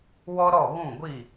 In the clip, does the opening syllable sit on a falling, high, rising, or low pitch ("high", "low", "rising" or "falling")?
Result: high